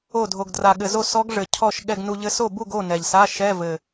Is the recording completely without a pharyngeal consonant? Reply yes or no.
yes